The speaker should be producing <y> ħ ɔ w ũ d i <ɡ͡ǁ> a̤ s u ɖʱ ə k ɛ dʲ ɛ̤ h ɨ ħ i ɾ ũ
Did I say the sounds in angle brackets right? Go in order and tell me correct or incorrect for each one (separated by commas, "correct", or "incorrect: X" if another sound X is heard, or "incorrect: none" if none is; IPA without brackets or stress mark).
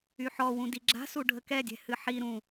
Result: correct, correct